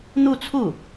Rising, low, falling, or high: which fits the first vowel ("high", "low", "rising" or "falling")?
falling